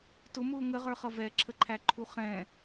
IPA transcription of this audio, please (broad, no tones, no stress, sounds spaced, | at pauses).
t ʊ m ʊː ŋ ə ʁ ə˞ χ ʌ v ɛ ǁʰ ə ǃʰ æ ǃʰ u χ ɛ̃